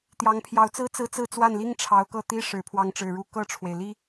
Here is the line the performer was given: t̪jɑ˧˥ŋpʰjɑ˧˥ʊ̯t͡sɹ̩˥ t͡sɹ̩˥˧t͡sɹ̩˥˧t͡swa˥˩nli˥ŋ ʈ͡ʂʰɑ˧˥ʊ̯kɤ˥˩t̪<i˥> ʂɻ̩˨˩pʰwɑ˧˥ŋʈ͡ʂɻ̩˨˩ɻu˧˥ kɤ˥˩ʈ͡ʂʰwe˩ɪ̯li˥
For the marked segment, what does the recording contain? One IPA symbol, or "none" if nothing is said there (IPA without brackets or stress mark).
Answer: i˥